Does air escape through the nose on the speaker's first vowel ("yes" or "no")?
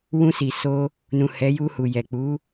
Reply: yes